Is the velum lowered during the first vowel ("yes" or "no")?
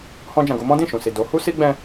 yes